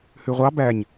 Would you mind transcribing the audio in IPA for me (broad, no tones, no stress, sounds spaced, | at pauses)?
h ʉ ʁʷ ɑ b æ ɲ